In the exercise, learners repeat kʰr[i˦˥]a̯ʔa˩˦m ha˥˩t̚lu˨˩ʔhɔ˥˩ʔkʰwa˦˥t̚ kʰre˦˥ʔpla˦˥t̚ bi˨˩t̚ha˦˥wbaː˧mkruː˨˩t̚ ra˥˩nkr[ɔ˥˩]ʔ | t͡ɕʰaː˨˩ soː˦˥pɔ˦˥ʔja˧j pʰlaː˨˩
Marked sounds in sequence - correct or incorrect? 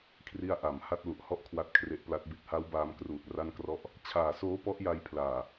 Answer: correct, correct

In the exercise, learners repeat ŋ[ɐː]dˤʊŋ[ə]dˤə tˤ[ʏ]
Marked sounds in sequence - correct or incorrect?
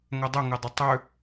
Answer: incorrect: ɐ, incorrect: ɪ, correct

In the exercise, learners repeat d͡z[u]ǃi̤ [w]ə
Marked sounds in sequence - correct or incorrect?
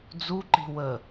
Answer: correct, correct

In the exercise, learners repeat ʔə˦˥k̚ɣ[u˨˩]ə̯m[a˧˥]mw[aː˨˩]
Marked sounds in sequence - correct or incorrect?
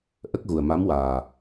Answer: correct, correct, correct

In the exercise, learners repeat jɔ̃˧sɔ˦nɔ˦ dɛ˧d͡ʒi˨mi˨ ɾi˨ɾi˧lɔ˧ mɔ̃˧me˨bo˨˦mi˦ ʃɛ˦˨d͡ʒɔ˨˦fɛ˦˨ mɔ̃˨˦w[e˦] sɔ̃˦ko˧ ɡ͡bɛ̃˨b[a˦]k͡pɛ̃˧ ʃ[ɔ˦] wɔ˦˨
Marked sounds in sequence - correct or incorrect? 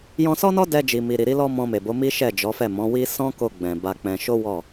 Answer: incorrect: i˦, incorrect: a˧, incorrect: o˦

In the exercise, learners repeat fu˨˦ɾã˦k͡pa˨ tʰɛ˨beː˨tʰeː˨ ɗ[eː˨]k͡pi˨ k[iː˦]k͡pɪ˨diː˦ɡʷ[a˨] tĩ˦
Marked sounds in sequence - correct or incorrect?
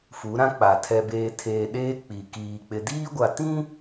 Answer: incorrect: eː˦, incorrect: iː˨, correct

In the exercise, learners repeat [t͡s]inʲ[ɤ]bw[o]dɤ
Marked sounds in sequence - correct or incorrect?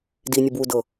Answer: incorrect: d, correct, incorrect: u

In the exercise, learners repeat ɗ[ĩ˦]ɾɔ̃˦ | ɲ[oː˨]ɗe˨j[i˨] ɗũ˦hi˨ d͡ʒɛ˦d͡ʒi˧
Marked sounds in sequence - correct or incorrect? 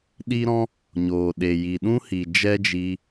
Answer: incorrect: i˦, correct, correct

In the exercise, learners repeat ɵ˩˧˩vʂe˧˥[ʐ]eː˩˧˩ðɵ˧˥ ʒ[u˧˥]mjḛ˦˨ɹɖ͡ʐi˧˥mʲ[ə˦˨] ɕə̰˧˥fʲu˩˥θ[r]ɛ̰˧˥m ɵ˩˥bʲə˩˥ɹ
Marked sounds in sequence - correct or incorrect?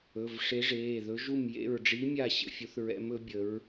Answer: correct, incorrect: u˦˨, incorrect: a˦˨, incorrect: ɹ

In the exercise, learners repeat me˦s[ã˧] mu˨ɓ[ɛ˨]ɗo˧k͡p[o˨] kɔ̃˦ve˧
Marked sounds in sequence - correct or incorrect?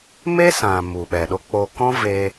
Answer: incorrect: ã˨, correct, incorrect: o˧

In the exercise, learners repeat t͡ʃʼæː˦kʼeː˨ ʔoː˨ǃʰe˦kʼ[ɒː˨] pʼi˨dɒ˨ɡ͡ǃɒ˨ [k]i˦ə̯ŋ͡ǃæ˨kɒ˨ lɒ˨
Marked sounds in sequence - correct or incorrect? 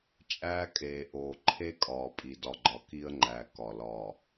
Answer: correct, correct

